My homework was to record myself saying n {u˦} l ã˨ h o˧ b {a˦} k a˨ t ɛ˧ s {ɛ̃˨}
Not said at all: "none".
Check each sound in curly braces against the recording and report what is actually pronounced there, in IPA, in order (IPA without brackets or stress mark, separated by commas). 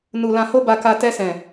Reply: u˨, a˨, ɛ̃˨